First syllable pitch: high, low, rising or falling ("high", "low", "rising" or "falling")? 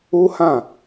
high